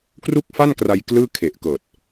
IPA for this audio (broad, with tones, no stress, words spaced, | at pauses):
kru˥˩k̚fa˥˩nkra˧j klɯː˥˩ kʰe˨˩ʔkɤː˨˩t̚